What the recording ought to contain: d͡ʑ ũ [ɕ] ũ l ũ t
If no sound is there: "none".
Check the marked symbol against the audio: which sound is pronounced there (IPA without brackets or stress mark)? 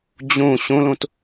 ɕ